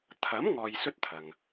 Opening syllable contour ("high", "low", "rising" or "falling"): rising